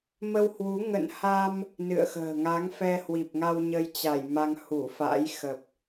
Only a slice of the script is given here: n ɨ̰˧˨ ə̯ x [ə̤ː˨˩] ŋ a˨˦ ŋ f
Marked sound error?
no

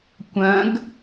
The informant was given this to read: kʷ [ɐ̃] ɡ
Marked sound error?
no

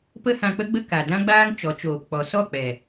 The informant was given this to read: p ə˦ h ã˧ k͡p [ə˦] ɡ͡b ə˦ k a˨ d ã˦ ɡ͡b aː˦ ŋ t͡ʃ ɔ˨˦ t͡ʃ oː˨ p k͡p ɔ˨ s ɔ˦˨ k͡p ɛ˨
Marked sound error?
no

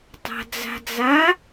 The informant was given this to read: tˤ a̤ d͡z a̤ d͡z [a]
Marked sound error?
no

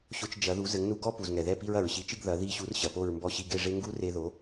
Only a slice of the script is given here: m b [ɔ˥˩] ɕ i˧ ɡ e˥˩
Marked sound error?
no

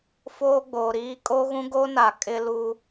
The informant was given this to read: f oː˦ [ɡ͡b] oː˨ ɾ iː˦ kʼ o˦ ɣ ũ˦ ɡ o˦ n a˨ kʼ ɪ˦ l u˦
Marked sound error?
no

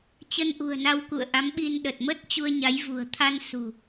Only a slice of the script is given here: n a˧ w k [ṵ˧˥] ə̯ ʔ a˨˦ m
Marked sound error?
yes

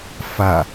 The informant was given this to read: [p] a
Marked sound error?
yes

